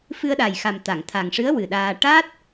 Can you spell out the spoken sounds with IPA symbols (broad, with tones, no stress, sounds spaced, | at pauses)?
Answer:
f ɨ˧ ə̯ ɗ a˨˩ j x a˨˩ m t̪ a˨˩˨ ŋ t̪ʰ a˨˩ ŋ ʂ ɨ˧˥ ə̯ w ɨ˨˩ ɗ aː˧ ʈ a˦˥ t̚